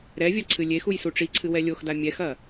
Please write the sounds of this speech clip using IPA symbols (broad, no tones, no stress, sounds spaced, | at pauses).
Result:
ɾ ɛ vʲ a ǀʰ ɨ lʲ e x u j s u ʈ͡ʂ i ǀʰ ɨ w ɛ lʲ o x d a mʲ ɛ x ɐ